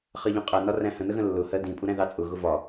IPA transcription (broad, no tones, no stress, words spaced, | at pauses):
χɜʎũqʼæ nɒræ̃hə̃ nəɣə̃lːʊ hɜdĩ pʼuɾæ̃ðɑt͡sʼʊ ɣʊvɒ